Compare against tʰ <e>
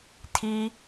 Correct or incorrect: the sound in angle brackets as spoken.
incorrect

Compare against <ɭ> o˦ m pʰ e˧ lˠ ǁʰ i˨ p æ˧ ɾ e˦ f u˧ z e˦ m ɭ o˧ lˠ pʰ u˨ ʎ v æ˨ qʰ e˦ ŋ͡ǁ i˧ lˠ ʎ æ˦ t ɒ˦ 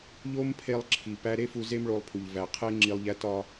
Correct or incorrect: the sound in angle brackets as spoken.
incorrect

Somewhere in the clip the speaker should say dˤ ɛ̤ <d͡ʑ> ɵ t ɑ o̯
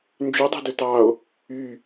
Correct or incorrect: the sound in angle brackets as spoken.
incorrect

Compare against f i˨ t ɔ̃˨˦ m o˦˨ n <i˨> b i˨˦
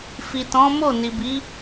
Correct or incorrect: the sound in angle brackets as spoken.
correct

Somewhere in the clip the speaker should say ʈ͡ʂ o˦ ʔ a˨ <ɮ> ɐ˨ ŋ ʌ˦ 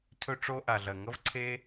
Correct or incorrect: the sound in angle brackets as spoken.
correct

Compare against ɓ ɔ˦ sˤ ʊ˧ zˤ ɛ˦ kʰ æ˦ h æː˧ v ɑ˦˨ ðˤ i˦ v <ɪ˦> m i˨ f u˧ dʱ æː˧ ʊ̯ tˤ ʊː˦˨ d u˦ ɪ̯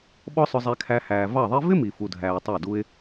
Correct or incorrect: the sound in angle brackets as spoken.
correct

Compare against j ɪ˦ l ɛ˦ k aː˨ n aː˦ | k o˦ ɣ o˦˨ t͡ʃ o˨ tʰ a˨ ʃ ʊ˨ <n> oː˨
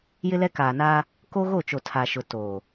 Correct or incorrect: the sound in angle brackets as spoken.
incorrect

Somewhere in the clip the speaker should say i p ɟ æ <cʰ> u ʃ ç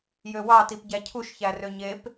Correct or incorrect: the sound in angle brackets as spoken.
correct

